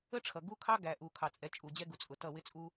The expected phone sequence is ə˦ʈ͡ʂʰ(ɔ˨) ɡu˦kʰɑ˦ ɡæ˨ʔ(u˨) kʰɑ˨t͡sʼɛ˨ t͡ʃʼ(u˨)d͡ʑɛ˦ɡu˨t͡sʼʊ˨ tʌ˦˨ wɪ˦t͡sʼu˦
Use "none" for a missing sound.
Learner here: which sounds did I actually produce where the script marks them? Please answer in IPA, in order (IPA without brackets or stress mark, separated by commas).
ʌ˨, u˨, u˨